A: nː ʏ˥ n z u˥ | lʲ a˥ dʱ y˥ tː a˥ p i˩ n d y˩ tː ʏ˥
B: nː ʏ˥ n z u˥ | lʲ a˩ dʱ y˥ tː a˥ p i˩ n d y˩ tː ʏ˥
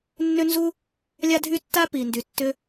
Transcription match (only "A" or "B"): A